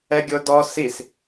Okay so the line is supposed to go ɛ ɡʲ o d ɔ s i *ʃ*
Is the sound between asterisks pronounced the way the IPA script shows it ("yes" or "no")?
no